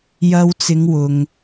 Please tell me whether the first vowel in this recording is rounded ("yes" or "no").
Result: no